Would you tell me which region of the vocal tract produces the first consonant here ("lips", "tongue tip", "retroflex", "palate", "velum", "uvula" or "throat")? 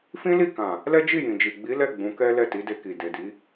lips